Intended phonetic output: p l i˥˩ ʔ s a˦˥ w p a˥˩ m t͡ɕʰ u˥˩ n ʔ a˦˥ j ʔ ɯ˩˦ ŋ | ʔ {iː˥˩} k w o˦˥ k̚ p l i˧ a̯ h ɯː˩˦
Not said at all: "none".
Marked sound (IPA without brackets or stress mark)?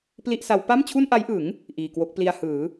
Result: iː˨˩